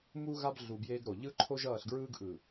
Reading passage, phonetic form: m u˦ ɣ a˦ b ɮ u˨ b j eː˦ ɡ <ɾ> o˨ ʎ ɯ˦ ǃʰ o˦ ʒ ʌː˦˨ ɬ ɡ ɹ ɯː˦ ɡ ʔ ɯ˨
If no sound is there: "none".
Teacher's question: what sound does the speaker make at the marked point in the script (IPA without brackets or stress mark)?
ɾ